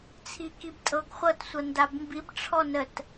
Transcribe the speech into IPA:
t͡sʰ i k i b tʼ ɤ ɡ χʷ ɤ t sʷ ɤ n d a b m b i b ʈ͡ʂʰ ɔ n ə t

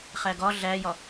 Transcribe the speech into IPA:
χ æ ɡ ɒ ɮ æ j ɒ

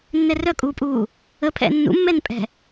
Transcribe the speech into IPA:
nː ɛ r œ kʼ uː pʼ uː | ə pʰ ɛ̰ nː ṵ mː ɛ n pʼ ɛ̤

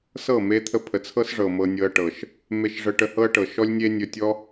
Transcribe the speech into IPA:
s ɤ˦˨ m e˦ t̪ʰ ə˦ pʰ ə˨ t͡sʰ ɤ˦ s ʐ ɤ˨ m ɤ˧ nʲ ɤ˧ ɐ̯ ʈ ɤ˨ ʃ | m e˧ ʃ ʐ ə˧ ʈ ə˧ h ɤ˦ ɐ̯ ʈ ɤ˨ ʃ ɔ˦ lʲ nʲ e˦ nʲ ɵ˧ tʲ ɔ˦

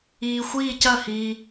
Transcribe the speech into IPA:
iː˧ xʷ iː˥˧ c ɐ˥˧ h iː˧

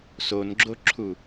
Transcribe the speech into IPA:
s o n ɡ͡ǁ o ǁʰ u

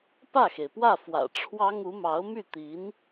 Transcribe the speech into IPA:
p ä˥˩ x e˩ ɪ̯ p w ä˥˩ f w ä̰˨˩ ʈ͡ʂʰ w ɑ˥ ŋ u˧˥ m ɑ˧˥ ʊ̯ m y˥˩ t̪ i˧˥ n

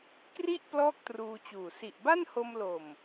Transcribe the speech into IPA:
k r i˥˩ ʔ p l ɔː˥˩ k̚ t r uː˧ t͡ɕ uː˨˩ s i˨˩ ʔ b a˥˩ n h o˧ m l o˨˩ m

